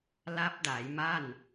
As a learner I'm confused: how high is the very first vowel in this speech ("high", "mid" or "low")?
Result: low